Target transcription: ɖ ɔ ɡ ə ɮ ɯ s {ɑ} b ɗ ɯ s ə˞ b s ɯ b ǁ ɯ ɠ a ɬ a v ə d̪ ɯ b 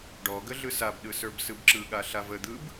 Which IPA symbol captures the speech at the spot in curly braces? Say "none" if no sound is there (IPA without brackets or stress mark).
a